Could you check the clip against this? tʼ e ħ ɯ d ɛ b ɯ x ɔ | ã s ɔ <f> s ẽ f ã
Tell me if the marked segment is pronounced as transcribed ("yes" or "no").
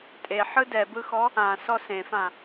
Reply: no